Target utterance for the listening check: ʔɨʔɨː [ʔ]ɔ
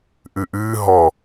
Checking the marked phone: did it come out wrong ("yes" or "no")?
yes